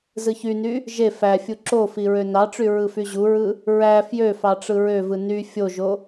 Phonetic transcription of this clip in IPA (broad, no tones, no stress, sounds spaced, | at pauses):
z ɯ ç y n y | ʒ e f æ fʲ u ǁ o f i ɹ ø n ɑ ʈ͡ʂ y ɹ ɯ f y ʑ u ɹ ɯ | ɹ æ f j ø f ɑ ʈ͡ʂ ɯ ɹ ø v ɯ n y fʲ o ʒ o